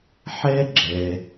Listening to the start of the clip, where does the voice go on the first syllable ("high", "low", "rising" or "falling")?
high